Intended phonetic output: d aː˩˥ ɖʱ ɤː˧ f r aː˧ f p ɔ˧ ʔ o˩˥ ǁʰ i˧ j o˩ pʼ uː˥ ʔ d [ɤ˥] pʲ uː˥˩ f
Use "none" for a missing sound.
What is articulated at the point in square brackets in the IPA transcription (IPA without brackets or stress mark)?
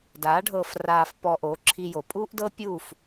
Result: ɤ˥